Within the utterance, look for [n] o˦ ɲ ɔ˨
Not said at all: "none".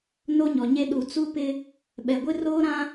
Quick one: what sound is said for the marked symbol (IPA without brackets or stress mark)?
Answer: n